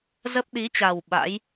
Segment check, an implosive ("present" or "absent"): present